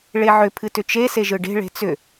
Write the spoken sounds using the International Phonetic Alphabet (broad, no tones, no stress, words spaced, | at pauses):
ɭeʕʏ pʰɨtʏt͡ʃe seʒɯɖe̤ ɭe̤t͡sʏ